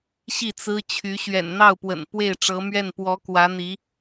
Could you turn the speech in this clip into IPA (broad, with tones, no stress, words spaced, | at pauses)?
ɕi˥˩t͡sɹ̩˥ t͡ɕʰy˧˥ ɕɥɛ̰˨˩nn̪ɑ˥˩ʊ̯pwə̰˨˩n pwe˥˩ɪ̯ʈ͡ʂɤ˧˥mɥɛ˥˩n pwɔ˧˥kwä˧˥n̪i˧˥